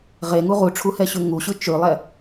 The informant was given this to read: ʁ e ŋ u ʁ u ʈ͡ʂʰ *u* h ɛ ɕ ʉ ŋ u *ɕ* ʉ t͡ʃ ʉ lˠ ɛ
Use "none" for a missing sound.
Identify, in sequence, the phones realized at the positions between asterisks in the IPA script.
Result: u, ɕ

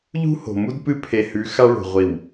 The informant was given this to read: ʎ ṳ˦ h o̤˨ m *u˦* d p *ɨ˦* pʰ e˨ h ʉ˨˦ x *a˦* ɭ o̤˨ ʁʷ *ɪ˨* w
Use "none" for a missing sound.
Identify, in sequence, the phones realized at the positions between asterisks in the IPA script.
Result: u˦, ɨ˦, a˦, i˨

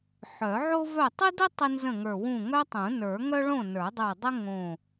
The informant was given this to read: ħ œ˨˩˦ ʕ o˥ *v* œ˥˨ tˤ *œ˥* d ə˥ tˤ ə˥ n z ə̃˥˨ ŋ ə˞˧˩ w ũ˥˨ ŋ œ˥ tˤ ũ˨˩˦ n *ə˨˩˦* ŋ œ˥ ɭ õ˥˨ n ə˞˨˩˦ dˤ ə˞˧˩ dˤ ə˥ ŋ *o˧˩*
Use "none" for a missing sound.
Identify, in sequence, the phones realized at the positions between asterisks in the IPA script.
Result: v, ə˥, ə˞˨˩˦, õ˧˩

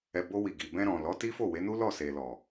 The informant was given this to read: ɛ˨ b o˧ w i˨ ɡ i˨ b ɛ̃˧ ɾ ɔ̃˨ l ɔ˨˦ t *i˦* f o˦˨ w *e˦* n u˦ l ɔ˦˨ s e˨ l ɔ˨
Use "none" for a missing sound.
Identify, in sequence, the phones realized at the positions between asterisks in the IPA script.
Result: i˦, e˨˦

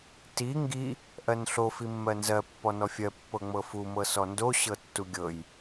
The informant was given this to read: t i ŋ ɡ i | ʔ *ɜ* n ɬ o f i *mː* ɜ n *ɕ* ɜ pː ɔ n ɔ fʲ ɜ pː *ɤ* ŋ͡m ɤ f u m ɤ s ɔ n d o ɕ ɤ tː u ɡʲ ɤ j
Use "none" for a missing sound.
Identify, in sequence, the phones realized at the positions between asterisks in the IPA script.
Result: ɜ, mː, z, ɤ

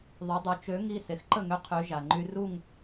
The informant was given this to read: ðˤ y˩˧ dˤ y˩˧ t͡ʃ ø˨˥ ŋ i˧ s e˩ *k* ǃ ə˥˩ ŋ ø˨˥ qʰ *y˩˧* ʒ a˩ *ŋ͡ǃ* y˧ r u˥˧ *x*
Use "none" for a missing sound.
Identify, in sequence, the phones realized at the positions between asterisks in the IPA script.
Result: x, y˩˧, ŋ͡ǃ, ŋ

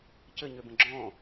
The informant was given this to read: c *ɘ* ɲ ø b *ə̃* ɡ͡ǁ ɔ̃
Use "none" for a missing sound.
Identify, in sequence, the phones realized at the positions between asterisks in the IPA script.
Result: ɘ, ə̃

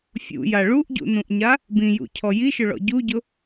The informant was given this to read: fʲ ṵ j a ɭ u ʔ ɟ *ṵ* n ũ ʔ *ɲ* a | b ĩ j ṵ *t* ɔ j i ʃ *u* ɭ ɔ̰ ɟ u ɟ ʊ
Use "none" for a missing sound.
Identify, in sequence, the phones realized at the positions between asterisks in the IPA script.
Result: ṵ, ɲ, cʰ, ʊ

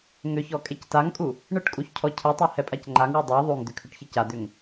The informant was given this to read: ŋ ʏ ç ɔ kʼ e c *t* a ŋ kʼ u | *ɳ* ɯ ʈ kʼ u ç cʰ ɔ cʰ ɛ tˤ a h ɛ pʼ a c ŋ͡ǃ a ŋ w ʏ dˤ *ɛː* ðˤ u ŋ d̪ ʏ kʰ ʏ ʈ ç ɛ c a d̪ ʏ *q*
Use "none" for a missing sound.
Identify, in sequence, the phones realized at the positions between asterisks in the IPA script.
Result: t, ɳ, ɛ, ŋ

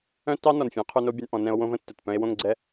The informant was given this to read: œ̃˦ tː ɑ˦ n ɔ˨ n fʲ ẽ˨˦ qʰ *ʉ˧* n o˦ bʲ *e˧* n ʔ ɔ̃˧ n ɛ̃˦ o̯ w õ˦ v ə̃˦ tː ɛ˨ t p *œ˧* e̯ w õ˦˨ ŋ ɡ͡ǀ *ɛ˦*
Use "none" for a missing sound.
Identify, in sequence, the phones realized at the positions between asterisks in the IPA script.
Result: ʉ˧, ɛ˧, œ̃˧, ɛ˦

